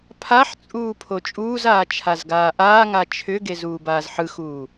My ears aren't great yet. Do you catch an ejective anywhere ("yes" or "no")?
yes